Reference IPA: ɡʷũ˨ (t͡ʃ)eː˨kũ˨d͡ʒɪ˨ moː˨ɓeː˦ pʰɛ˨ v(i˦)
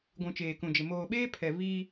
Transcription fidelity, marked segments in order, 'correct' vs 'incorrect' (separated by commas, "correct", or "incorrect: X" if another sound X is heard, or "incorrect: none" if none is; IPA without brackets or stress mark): correct, incorrect: iː˦